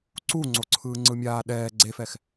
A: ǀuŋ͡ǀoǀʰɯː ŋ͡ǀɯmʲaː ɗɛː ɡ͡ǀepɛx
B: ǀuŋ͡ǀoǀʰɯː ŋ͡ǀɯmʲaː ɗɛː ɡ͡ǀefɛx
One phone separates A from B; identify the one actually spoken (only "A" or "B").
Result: B